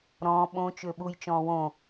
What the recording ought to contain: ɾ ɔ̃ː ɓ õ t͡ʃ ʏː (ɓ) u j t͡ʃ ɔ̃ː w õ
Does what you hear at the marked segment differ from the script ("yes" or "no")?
no